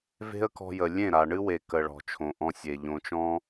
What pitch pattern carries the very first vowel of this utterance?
high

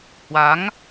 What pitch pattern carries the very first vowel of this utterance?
rising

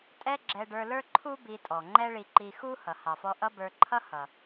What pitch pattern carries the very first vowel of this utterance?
high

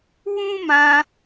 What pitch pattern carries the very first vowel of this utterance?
high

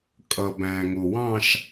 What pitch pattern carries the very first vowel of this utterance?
low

